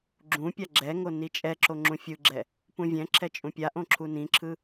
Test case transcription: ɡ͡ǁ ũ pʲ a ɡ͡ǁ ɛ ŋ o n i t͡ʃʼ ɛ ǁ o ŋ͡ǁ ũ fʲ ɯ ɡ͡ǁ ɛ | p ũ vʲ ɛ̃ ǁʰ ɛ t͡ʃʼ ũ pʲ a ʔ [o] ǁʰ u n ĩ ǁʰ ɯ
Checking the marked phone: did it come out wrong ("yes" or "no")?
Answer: yes